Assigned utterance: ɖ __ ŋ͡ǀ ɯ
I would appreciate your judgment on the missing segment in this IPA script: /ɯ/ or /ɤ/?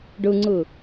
ɯ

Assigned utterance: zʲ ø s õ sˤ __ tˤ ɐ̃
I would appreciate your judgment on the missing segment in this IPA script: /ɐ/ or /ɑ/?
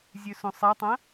ɐ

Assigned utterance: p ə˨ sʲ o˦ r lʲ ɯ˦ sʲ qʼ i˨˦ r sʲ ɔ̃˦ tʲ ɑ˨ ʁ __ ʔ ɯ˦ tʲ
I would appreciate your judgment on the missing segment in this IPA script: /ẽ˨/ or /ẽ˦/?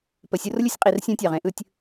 ẽ˦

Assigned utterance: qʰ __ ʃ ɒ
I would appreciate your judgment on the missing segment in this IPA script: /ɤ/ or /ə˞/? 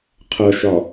ɤ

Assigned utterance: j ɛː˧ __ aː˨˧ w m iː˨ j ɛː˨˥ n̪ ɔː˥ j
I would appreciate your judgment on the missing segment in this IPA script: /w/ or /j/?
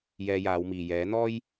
j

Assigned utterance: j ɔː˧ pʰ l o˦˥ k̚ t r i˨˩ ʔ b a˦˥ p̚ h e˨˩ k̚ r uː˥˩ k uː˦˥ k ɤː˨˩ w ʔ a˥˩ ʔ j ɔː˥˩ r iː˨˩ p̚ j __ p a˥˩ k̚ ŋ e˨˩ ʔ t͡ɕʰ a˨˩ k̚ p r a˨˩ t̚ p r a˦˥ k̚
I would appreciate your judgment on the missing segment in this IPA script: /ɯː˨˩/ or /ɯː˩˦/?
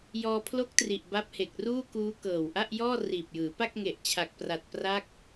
ɯː˩˦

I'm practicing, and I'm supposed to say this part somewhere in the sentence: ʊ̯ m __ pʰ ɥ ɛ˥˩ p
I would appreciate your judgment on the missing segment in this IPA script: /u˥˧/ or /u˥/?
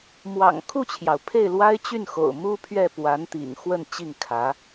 u˥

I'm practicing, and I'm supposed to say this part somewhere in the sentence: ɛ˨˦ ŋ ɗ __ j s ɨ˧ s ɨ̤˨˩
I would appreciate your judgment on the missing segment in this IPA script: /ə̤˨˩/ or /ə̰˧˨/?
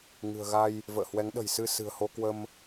ə̤˨˩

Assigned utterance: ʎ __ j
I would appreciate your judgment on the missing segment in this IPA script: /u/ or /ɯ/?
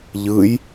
ɯ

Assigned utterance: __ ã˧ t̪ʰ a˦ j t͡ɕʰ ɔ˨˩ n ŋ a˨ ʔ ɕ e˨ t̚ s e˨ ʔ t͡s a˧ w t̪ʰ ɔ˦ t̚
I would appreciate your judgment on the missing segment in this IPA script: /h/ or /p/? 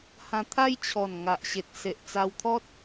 h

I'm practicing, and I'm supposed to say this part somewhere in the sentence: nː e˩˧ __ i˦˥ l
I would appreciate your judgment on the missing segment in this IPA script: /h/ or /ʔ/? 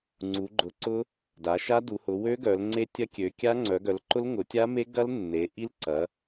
ʔ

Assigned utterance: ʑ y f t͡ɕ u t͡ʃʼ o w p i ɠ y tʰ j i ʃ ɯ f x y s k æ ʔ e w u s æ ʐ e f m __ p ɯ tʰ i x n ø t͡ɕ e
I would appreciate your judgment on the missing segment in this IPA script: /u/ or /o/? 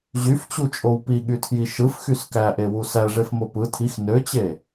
o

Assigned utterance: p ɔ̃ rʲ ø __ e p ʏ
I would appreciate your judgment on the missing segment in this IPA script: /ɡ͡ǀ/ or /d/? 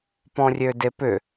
d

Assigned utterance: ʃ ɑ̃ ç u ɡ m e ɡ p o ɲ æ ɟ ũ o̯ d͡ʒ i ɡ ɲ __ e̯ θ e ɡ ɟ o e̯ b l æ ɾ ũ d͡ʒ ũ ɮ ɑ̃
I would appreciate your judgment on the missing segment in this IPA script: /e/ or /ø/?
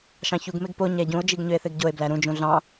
ø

